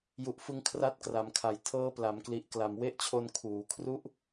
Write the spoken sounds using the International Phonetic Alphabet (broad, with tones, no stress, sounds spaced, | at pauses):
j u˨˩ ʔ f ɯ˧ ŋ kʰ r a˦˥ t̚ k r a˩˦ m kʰ a˨˩ j tʰ ɤː˦˥ p l a˩˦ m k l i˨˩ ʔ k l a˨˩ m w e˥˩ ʔ t͡ɕʰ o˧ n kʰ uː˩˦ kʰ r u˥˩ ʔ